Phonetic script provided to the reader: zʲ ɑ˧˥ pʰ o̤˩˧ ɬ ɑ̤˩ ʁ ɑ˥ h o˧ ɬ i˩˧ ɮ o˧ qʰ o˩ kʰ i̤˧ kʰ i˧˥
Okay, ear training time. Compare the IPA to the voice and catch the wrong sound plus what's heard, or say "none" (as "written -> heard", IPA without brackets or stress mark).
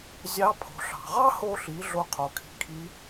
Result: none